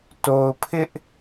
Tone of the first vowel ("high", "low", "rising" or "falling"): low